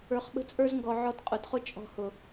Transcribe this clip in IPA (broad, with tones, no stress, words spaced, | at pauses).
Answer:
ə˞˨χɓə̤˧t͡sʼə˞˧zŋɡɔ˨ ʕɔ˧tqʼʊ˨dχʊ˦ t͡ʃʼɔ̤˧hʊ˨